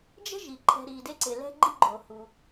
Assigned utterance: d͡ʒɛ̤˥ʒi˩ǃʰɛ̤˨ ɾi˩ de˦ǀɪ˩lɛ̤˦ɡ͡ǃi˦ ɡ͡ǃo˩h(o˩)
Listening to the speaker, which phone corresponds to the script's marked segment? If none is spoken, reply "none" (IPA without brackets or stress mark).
u˩